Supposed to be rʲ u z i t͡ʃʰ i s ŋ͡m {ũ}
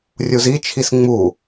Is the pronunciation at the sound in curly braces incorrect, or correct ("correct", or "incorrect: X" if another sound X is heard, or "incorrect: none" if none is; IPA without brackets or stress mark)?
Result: incorrect: u